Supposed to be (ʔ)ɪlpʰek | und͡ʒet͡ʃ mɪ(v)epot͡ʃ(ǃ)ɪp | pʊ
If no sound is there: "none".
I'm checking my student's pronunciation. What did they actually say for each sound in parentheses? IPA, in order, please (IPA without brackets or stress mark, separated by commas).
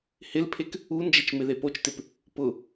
h, ð, t